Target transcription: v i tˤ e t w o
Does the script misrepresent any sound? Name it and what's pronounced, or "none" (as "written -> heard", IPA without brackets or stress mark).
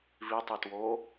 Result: none